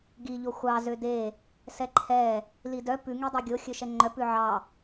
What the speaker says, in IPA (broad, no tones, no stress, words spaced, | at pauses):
ɡiʎo xʷɑ zøde | sɛǃʰɛ | lidœ pʉŋedˤʉ ɡʲoxʲɵ ʃɛŋ͡ǃœ pʉʕɑ